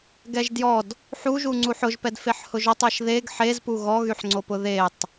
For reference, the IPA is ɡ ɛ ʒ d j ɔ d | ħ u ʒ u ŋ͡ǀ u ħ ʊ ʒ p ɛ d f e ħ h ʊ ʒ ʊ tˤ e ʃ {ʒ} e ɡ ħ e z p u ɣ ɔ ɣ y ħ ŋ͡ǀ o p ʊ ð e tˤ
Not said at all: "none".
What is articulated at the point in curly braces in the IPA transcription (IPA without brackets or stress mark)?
ð